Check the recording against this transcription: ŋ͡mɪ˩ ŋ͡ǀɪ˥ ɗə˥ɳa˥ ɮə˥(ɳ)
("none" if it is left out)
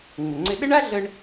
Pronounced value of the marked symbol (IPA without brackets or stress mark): ɳ